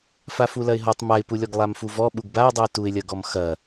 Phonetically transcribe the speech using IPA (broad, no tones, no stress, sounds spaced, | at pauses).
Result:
f a f u l ɐ ɪ̯ ɦ ɔ tˤ m a ɪ̯ p u lʲ ɔ ɡ lˠ a m f u v ɔ ɓ u ɡ b a ʊ̯ dˤ u ɪ̯ t u ɪ̯ lʲ ɐ ɡ ɔ m x ɐ